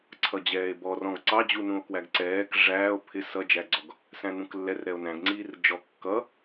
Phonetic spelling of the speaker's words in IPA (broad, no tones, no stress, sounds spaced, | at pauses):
ǀʰ ʌ d͡ʑ ɛː e̯ b ɔ r ɔ̃ ɡ ǀ ɑ d͡ʑ u n ũ o̯ k w æ ɡ ǀ ɛː k ʐ æː o̯ pʰ ɪ s ʌ d͡ʒ æ ɡ͡ǀ ɔ ɡ | s æ̃ n ũ k lː ɛ r ɾ ɛ o̯ n æ̃ ɡ ŋ͡ǀ iː r d͡ʒ ɔ kː ʌ